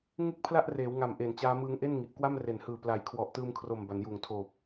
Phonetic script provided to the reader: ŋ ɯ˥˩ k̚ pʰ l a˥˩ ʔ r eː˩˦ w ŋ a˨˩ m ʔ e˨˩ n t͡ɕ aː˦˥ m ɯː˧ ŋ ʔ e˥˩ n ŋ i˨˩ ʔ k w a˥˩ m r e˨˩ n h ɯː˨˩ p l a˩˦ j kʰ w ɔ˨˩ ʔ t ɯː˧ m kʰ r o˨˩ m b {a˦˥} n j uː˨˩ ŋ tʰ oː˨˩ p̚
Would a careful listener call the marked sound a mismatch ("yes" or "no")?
yes